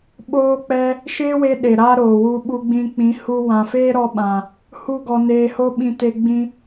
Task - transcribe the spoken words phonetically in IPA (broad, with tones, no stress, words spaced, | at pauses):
ɓoː˦k͡pɛ˦ | ʃeː˦we˧ ɗe˨ɾa˦ɾoː˨wu˧ ɓu˧ ɡ͡bĩ˧k͡pĩ˨˦hu˧ wã˨feː˦ɾɔ˧ɓã˨ | hu˦ɡɔ˧neː˧ho˦ ɓĩ˧te˧ ɡ͡bĩ˧